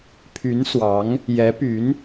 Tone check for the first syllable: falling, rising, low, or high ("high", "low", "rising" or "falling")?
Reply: rising